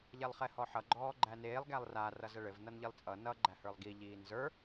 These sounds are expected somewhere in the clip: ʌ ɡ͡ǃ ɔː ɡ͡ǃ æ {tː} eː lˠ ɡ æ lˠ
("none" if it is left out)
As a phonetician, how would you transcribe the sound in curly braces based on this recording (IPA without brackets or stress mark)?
n